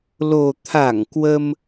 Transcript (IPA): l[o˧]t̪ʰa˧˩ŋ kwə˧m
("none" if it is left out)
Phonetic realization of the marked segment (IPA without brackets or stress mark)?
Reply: o˨˩